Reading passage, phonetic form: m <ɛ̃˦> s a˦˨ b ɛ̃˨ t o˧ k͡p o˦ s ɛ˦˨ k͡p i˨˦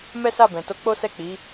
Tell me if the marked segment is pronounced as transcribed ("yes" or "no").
no